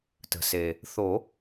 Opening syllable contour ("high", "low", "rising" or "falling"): low